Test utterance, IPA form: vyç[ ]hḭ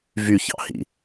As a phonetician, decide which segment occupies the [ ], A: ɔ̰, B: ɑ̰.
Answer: B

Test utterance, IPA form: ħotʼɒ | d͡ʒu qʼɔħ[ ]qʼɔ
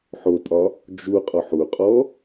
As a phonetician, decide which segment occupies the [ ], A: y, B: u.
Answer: B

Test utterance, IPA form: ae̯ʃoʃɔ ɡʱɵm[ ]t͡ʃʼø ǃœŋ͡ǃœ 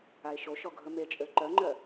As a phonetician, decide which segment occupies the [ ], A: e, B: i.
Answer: A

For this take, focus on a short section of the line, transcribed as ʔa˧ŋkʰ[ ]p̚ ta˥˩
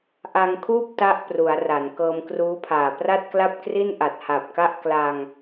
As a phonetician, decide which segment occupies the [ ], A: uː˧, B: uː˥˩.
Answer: B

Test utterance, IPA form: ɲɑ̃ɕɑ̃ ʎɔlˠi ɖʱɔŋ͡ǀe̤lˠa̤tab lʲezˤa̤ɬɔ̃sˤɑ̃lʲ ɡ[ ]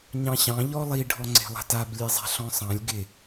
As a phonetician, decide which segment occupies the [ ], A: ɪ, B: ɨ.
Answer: A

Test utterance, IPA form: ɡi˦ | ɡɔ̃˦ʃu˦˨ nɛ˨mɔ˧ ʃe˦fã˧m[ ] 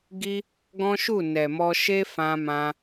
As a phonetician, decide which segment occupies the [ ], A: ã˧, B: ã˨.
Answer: A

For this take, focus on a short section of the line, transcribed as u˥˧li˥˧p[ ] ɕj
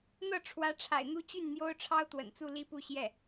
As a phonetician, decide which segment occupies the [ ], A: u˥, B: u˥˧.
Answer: B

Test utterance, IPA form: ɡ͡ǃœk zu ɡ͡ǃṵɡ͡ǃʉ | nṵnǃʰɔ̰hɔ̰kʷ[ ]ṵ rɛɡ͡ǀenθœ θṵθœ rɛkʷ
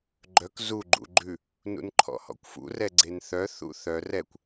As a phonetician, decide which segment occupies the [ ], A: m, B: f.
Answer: B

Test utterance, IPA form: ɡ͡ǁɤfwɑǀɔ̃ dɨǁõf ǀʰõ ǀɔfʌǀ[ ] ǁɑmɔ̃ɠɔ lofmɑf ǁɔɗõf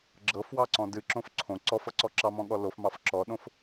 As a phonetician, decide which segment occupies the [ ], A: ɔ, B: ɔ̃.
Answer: A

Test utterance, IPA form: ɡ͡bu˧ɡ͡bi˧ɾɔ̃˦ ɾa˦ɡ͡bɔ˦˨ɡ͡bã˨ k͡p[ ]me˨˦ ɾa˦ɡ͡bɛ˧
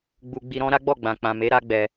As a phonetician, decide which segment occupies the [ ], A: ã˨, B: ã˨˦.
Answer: A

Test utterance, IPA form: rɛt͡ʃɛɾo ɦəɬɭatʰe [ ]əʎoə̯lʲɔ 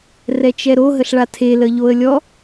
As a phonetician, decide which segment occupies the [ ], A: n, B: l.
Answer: B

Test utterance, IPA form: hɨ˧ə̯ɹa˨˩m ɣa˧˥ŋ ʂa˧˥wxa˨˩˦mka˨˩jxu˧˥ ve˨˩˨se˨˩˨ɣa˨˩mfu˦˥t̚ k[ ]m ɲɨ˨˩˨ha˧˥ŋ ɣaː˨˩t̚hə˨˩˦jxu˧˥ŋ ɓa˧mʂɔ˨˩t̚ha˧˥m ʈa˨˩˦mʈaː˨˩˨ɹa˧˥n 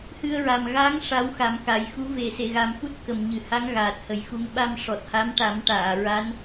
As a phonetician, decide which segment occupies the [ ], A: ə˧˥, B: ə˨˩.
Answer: B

